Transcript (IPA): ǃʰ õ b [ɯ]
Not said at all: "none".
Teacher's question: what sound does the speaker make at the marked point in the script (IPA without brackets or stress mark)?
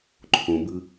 ɯ